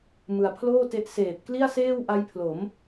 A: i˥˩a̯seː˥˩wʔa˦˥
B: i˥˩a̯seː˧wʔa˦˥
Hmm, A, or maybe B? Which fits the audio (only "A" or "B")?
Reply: A